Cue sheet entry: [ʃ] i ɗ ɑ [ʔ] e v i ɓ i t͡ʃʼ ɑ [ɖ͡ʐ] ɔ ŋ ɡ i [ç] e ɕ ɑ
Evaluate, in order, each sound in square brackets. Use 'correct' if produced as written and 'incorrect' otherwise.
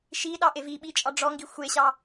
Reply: correct, correct, correct, incorrect

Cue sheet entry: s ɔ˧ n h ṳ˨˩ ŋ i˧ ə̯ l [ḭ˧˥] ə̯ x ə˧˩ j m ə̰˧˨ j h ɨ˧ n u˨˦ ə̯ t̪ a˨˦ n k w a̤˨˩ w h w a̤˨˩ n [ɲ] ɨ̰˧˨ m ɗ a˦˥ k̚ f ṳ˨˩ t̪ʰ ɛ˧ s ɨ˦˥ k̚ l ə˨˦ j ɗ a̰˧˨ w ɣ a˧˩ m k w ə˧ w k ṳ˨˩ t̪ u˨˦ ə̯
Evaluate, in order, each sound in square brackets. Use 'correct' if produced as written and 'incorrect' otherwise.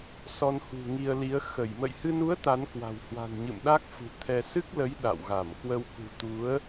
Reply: incorrect, correct

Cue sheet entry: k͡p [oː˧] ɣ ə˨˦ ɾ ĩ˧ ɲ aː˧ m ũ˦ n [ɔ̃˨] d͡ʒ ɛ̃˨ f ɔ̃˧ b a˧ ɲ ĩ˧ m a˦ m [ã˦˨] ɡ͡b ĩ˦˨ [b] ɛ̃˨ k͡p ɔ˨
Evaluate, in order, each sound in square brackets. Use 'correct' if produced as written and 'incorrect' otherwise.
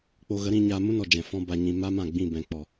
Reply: incorrect, incorrect, correct, correct

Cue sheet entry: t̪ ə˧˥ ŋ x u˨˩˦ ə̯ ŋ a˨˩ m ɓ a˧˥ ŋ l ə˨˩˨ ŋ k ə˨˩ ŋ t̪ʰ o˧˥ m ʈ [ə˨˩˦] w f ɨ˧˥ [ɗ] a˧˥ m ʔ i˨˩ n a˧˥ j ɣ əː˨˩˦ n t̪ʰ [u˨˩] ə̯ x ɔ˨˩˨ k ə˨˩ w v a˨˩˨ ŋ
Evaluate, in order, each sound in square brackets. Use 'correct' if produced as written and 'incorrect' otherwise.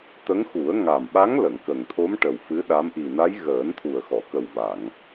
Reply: incorrect, correct, correct

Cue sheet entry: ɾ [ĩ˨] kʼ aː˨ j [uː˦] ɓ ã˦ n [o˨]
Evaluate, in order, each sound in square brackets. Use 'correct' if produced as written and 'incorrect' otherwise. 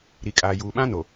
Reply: incorrect, incorrect, correct

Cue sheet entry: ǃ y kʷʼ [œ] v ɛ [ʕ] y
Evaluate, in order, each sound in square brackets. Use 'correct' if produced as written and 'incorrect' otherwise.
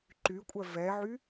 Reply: correct, correct

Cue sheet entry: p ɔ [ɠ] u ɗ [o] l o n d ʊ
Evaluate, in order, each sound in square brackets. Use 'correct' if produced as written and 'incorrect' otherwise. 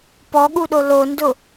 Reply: correct, correct

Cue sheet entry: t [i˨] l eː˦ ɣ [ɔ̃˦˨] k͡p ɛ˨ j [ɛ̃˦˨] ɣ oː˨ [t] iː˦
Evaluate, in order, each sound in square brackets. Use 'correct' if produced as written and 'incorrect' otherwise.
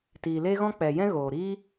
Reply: incorrect, incorrect, incorrect, incorrect

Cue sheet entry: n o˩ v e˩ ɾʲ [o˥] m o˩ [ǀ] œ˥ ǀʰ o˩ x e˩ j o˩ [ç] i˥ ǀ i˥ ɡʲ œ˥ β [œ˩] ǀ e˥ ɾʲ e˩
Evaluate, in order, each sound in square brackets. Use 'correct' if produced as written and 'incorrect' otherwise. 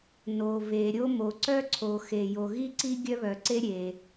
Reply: correct, correct, incorrect, correct

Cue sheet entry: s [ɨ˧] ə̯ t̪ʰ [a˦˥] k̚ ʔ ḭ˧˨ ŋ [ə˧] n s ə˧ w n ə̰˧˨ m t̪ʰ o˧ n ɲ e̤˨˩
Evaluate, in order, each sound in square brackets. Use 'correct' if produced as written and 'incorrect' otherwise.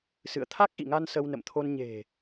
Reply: incorrect, correct, incorrect

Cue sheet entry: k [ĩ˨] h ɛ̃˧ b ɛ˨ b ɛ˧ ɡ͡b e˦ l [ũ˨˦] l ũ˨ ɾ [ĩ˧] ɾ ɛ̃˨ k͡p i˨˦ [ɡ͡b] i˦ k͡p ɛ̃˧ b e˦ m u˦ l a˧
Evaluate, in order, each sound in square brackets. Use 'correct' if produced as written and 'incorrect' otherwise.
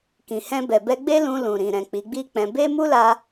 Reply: correct, incorrect, incorrect, correct

